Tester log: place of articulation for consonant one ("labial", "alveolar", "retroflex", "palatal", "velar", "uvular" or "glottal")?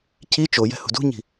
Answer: palatal